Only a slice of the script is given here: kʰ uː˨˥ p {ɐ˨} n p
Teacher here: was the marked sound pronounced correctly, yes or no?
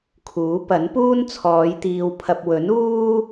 no